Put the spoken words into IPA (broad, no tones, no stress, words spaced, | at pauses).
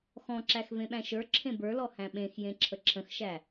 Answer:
xɔ̃ǁæx vẽɓæ̃ʃə˞ ǁʰẽbə˞lɔ hæ̃ɓẽx jẽǁʰəǁʰə̃xʃæ